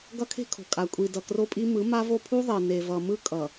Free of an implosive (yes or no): yes